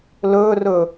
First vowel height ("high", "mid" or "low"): mid